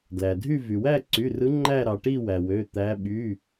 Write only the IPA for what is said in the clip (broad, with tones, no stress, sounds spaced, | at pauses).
d l æ˩ dʱ y˦˨ v y˩ w æ˦˨ ǀ y˩˧˩ r ɯ˨˦ ŋ͡ǃ æ˦˨ ɾ ɑ˩ ʈ i˦˨ w æ˩ w ø˩˧˩ t̪ æ˨˦ ɓ y˩˧˩